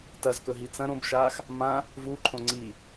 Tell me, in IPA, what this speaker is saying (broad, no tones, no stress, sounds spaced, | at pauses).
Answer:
t ɐ z k ɵ ɦ i t͡s ɐ̃ ɾ õ b ʃ aː x | m ã | v u ǃʰ õ ŋ͡ǀ i